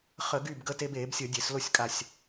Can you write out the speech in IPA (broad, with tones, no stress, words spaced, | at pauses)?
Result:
χə˧˩˧ɡy˥˩b ɡə˧te˧be˧˩˧bsʲə˧˩˧ dʲe˧˩˧slo˥˩sʲkʼa˧˩sʲ